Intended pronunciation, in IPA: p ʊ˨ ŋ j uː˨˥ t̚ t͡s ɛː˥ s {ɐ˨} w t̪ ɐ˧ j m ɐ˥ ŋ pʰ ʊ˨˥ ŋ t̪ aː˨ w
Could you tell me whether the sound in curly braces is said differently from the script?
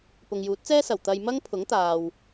yes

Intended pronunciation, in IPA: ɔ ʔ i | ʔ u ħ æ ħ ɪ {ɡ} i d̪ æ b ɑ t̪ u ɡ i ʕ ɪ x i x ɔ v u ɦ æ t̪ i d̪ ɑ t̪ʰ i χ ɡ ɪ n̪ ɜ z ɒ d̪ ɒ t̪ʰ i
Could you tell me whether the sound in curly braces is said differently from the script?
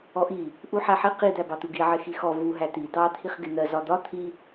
yes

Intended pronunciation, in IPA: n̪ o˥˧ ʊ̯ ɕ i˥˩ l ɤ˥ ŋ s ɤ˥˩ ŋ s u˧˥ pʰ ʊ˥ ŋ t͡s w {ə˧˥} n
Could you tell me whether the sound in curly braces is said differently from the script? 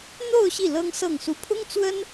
yes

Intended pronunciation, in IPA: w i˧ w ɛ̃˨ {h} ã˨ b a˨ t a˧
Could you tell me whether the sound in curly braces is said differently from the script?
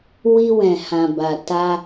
no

